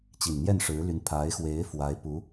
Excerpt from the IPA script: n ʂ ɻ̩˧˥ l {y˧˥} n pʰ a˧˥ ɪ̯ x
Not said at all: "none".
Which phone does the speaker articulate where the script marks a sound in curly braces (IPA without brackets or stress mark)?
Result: y˧˥